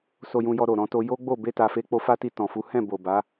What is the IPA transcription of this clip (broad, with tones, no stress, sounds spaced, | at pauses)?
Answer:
s o˧ j ũ˧ j ɔ˧ ɾ o˨ ɾ ɔ̃˧ t o˧ j o˦ ɡ͡b o˦˨ b e˧ t a˨ f e˧ k͡p o˧ f a˦ t i˧ t ɔ̃˨ f u˨˦ h ɛ̃˦˨ b o˨ b a˨˦